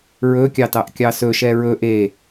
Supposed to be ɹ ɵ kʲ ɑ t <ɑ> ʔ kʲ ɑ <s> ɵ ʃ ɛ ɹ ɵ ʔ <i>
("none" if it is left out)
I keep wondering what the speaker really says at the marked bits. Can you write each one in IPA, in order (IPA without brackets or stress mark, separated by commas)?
ɑ, s, e